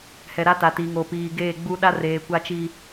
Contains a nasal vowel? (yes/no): no